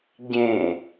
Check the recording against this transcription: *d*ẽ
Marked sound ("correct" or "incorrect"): incorrect